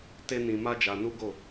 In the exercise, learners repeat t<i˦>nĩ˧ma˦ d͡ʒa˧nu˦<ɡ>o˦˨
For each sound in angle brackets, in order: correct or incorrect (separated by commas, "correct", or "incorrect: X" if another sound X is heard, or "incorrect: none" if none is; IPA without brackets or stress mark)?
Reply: incorrect: e˦, correct